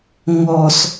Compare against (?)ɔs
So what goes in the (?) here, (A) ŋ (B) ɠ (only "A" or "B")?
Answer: A